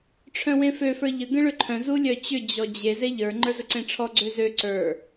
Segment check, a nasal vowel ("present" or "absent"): present